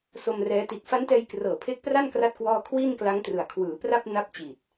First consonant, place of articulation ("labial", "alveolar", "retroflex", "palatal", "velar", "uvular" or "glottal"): alveolar